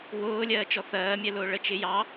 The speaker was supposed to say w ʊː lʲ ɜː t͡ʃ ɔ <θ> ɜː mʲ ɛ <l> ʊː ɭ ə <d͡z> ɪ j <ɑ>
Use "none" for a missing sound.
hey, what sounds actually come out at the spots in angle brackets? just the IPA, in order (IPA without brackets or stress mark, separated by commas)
θ, l, t͡ʃ, ɑ